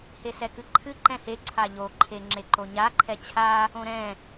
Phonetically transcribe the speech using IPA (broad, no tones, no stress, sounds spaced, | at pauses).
h e s ɛ k ɨ ǃʰ ɨ ǃ ɛ̃ h e ǀʰ a ʎ o ǃʰ e ŋ͡ǁ e ǃ o ɲ a ǃʰ ɛ t͡ɕʰ a | õ ɾ ɛ̃